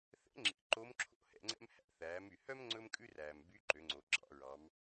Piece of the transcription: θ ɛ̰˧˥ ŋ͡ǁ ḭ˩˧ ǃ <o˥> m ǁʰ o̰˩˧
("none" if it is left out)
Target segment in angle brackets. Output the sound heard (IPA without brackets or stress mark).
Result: o˧˥